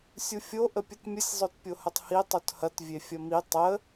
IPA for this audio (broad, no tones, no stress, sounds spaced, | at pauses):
sʲ u fʲ o ʔ ə pʲ ə t mʲ ə sʲ zˤ o t pʲ o h ə tˤ h i tˤ u t h ɐ t vʲ e fʲ ɐ m i tˤ ə